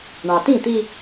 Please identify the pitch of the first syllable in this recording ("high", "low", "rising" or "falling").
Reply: low